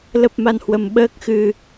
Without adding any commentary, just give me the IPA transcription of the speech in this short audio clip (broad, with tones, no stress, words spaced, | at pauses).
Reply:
lə˦˥p̚ma˧nhwə˧m ɓəː˦˥k̚xɨ˧